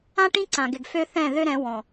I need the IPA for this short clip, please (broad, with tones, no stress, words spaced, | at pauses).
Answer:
ã˦ʈĩ˦ǀã˨ɡɪ˨ɡ fø˦θɛ̃˦˨ ðø˦ɾɛ̃˨˦ wɔ̃˨